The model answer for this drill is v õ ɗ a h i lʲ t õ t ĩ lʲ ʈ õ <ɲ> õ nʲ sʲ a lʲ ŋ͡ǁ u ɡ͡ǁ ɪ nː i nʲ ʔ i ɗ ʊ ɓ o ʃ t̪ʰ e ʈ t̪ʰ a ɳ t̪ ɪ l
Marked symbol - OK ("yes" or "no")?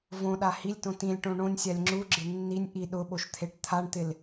no